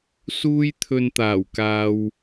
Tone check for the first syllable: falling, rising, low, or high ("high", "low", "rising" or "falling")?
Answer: high